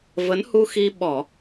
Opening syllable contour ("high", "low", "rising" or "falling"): rising